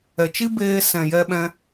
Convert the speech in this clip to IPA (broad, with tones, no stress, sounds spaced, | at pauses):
ɛ˨ t͡ʃ i˦ b eː˧ s ɛ̃˨ j ɛ˧ ɓ ɛ̃˧